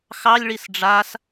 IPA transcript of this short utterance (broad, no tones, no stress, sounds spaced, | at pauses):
x ɑ lʲ ɭ i s ɖ͡ʐ a s